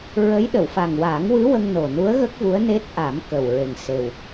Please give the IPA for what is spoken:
ɹə˧˥j ɗə˨˩˨wfa˨˩ŋwaː˨˩˦ŋ wɨ˧˥ wə˧ŋno˨˩nu˧˥ə̯ ɣə˦˥k̚vu˧˥ə̯ ne˦˥t̚ʔa˨˩˦m kə˨˩wɹe˨˩ŋ se˨˩w

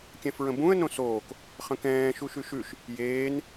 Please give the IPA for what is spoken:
kʲɛ̃fɹə̃bũə̯ nõsoːk | χə̃kɛ̃ː ʃuʃʉʃʉʃ | jeːn

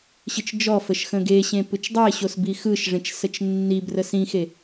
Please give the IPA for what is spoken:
ɕɯt͡ʃd͡ʒɔfəʃ xə̃ɡeɕẽ pɯt͡ʃdˤeɕos bixɯʃʐẽt͡ʃ sət͡ʃnːibrəs ĩxe

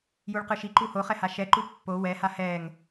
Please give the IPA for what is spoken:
juɭqɯʃiǃu hoχɛ haʃɛǃu pːo wɛha hɛŋ

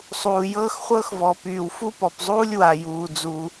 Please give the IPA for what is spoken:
sˤuː˩jɤː˥xχʷɤ˥xvɔ˩ pyː˩w fu˥pɔ˩pzˤuː˥lʲ wa˩ juː˩ d͡zu˩

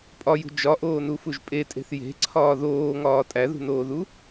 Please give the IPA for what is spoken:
pʼɒjṳ d͡ʒɒʔoːnufuʒ pʼetʼe̤θ je̤ǀʰɒː ðoːŋɒː tʼæðṳnoːðu

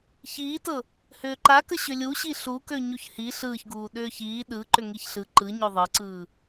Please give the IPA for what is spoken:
çiːtɤ | hʏːǃakə ɕʏlʲuɕi ɬukø ɲuçhi ɬɯːçɡuː ɗʏːçiː ɗɯ ǃʏŋiçɬɯ ǃɯ ɲøðˤɤǀɯː

